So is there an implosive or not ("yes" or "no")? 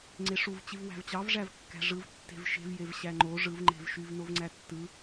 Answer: no